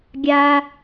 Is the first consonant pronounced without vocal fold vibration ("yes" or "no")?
no